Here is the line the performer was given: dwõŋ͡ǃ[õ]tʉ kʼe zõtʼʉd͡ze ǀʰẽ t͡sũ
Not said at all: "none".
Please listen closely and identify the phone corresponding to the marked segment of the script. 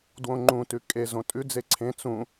ũ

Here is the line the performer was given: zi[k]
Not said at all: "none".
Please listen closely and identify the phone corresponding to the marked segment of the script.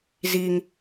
ŋ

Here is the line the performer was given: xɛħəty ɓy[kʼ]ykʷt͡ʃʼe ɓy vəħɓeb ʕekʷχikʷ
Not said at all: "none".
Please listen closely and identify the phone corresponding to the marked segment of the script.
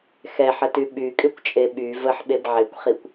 kʼ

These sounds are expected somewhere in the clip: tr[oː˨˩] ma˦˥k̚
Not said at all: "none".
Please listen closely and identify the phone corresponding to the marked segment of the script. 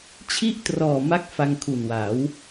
ɔː˨˩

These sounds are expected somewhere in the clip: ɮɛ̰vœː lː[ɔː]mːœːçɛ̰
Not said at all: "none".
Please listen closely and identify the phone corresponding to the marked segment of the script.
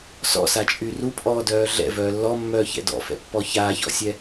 ɔ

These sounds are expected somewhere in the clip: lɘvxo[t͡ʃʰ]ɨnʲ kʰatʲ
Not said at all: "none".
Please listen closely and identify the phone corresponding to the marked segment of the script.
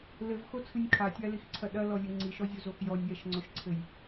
t͡sʰ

